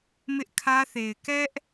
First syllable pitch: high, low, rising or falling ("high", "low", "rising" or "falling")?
high